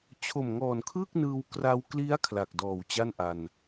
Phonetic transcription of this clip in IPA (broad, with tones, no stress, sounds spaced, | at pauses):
t͡ɕʰ o˨˩ m ŋ ɔː˨˩ n kʰ ɯː˥˩ k̚ n ɯː˧ w k r a˧ w k l i˦˥ a̯ kʰ l a˨˩ k̚ d ɔː˨˩ w t͡ɕ a˥˩ n ʔ a˧ n